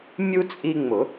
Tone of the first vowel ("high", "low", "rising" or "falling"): high